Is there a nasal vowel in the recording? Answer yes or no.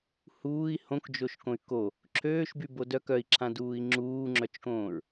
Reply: yes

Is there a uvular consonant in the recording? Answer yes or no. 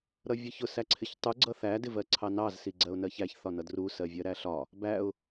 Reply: no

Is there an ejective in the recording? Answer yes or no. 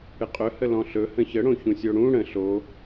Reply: yes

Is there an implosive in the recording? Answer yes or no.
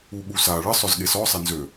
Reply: yes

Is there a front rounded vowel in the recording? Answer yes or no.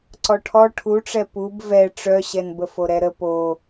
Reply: yes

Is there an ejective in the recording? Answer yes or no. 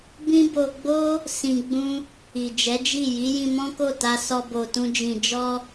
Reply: no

